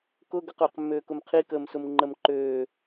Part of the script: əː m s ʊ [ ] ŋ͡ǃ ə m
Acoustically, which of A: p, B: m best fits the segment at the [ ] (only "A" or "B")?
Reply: B